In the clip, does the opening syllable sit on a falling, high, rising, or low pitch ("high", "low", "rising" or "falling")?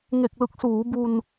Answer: low